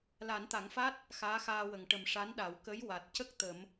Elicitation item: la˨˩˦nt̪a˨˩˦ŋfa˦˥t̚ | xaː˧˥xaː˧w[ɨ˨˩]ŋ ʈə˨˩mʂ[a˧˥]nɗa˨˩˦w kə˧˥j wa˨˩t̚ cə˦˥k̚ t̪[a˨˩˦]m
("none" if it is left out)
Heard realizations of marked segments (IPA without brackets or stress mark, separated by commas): ə˨˩, a˧˥, ə˨˩˦